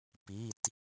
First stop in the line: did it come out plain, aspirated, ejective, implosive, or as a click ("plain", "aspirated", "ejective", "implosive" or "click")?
plain